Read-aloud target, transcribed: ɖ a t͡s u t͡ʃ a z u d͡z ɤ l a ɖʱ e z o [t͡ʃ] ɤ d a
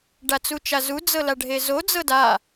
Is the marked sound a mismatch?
yes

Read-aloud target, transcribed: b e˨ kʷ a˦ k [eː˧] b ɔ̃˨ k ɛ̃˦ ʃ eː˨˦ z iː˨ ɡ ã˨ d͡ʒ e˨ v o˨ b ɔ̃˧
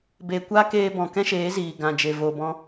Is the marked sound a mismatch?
no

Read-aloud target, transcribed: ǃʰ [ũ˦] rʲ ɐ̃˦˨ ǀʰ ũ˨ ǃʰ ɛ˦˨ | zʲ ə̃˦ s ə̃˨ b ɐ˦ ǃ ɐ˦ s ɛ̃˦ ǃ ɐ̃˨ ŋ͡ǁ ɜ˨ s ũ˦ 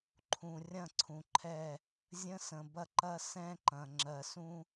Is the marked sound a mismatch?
yes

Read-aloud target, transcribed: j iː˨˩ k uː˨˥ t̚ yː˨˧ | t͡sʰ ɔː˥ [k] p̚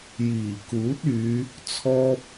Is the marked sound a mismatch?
yes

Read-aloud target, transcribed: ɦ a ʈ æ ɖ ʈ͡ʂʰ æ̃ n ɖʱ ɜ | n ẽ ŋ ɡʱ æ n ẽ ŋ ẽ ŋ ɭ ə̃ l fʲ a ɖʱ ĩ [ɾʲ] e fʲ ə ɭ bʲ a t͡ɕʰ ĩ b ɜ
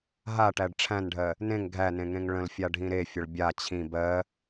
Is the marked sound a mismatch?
yes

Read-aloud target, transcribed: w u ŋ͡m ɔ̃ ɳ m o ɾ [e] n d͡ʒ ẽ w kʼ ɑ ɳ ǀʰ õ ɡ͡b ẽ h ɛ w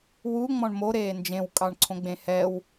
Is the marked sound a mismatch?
yes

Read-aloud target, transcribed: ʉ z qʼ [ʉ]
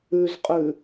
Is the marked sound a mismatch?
no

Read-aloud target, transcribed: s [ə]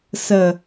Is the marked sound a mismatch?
no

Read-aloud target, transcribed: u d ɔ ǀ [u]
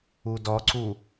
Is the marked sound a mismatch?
no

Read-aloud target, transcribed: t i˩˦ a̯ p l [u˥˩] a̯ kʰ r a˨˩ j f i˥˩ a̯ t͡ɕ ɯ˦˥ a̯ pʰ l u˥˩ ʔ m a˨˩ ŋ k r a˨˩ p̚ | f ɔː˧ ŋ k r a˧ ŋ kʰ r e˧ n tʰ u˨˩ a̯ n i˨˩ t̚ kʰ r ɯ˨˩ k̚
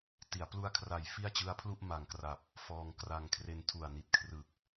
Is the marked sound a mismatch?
yes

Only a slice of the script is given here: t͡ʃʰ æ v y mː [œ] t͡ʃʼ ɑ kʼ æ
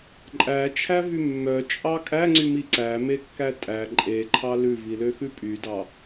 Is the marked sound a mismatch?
no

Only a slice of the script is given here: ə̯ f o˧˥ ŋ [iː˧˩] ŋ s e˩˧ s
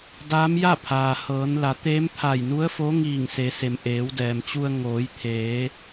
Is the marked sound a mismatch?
no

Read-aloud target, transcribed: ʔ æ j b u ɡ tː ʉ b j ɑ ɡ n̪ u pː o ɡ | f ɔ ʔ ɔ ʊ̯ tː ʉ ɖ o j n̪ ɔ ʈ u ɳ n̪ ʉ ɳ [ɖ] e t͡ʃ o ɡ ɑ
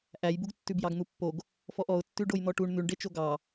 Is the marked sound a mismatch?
no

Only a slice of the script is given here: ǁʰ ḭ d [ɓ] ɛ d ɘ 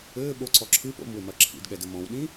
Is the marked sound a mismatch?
yes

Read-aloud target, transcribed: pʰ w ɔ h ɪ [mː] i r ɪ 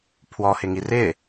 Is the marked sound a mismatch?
yes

